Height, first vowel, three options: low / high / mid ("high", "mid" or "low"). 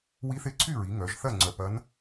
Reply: high